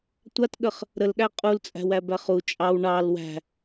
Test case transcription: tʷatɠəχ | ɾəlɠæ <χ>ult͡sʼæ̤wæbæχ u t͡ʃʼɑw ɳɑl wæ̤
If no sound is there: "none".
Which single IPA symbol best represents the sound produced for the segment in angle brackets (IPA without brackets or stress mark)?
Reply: qʼ